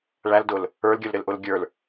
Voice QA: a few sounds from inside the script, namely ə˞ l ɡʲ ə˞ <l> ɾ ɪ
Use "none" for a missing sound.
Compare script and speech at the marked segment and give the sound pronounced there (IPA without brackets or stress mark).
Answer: l